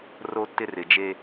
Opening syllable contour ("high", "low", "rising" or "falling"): high